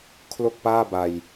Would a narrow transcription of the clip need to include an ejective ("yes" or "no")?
no